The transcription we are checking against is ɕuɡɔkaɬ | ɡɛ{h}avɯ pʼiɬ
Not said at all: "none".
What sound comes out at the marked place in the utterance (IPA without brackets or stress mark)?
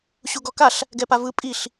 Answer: p